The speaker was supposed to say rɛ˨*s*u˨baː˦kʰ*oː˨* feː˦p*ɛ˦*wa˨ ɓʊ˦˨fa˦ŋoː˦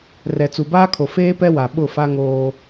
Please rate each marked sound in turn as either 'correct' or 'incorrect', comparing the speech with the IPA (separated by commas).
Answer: incorrect, incorrect, correct